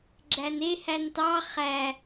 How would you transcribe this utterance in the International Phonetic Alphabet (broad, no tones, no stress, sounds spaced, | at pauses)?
ɡ͡ǁ æ n e h æ n t ɑ χ æ